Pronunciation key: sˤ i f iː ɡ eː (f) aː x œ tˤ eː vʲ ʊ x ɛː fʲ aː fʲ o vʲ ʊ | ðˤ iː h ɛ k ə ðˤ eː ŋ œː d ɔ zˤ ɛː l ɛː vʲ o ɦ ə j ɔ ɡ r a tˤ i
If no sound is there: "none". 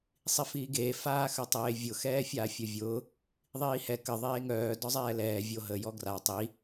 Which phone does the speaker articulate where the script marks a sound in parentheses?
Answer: f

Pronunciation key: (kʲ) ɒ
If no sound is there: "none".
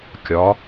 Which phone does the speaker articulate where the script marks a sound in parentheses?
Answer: kʲ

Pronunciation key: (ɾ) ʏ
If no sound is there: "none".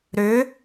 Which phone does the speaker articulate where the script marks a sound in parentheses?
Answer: ɾ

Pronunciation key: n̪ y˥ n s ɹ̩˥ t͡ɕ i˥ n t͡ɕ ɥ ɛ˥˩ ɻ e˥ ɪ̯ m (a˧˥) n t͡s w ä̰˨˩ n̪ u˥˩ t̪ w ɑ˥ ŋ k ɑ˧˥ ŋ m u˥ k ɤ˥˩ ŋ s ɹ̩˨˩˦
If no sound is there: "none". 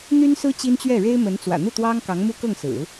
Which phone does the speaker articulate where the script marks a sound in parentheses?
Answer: ə˧˥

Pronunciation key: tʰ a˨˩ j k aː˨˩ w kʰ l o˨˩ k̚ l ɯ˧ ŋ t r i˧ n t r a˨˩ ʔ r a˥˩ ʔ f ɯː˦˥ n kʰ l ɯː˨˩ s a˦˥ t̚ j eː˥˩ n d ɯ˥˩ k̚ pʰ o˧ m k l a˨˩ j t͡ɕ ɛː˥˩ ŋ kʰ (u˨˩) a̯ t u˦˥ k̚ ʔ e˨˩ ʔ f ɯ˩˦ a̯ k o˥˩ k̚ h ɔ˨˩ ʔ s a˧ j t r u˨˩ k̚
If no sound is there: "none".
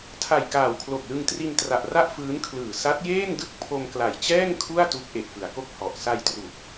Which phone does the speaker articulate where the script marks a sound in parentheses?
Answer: u˥˩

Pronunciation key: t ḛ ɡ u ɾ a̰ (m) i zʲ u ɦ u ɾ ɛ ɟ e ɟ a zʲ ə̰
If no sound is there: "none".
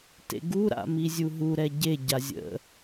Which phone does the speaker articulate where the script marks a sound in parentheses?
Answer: m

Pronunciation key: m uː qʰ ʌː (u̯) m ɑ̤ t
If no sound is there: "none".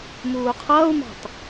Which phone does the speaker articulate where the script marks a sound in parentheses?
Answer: u̯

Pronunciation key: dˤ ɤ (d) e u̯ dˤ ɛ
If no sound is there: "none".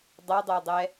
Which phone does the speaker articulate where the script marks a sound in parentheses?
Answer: dˤ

